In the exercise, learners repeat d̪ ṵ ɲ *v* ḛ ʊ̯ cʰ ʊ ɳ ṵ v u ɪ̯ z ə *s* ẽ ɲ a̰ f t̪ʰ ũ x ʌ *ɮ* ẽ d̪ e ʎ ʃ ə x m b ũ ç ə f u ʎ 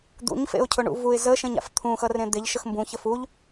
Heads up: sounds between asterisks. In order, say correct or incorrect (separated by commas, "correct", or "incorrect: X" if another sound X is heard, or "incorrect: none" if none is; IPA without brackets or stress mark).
incorrect: f, incorrect: ʃ, incorrect: r